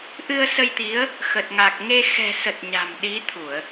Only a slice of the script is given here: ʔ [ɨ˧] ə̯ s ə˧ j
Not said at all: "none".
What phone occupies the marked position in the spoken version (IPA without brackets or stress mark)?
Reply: ɨ˧